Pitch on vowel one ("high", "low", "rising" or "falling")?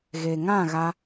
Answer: low